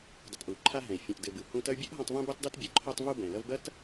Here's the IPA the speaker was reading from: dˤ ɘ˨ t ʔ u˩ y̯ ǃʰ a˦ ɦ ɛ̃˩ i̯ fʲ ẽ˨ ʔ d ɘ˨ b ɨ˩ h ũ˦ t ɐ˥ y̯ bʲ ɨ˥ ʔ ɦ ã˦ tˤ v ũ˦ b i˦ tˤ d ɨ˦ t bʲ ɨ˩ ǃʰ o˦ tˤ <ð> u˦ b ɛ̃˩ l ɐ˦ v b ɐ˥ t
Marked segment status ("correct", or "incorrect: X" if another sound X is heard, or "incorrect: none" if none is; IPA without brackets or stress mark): incorrect: v